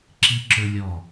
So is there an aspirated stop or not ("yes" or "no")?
no